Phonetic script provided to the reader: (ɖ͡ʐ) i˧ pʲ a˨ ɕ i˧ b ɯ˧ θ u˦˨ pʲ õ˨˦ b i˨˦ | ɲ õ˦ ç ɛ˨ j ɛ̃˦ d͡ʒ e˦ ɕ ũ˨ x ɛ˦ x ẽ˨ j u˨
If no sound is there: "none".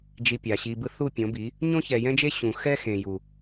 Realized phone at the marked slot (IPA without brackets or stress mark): d͡ʒ